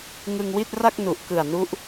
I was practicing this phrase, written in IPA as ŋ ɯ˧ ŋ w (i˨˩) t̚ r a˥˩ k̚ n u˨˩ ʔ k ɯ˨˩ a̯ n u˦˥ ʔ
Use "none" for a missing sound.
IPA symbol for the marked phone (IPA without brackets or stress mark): i˥˩